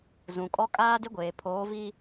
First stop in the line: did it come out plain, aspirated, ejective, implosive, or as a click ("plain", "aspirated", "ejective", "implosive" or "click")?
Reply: ejective